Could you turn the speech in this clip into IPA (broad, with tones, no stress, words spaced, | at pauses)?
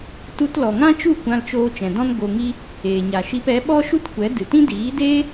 tu˧tlɔ˨ŋã˦t͡ʃu˦˨ kʷã˧lt͡ʃoː˧ t͡ʃɛ̃˨dɔ̃˦n ɡo˧ŋi˦ | eː˨ɲa˨ʃi˧p ɛ˨˦ɓɔ˦ʃu˦t kʷɛ˨˦ dɨ˨tĩ˦diː˨˦deː˦